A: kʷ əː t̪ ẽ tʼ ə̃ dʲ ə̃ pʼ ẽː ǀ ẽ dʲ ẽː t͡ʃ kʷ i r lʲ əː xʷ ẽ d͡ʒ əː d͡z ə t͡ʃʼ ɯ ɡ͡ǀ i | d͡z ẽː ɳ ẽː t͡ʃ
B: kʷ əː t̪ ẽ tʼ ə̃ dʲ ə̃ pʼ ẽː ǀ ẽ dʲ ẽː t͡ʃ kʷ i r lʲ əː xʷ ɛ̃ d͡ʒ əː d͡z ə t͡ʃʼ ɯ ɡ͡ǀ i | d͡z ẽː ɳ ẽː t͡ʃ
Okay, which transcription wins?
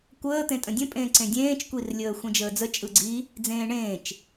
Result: A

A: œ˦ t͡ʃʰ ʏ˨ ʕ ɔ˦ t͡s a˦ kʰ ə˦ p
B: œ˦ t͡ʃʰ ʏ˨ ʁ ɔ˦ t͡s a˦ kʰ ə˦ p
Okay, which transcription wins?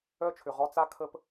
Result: B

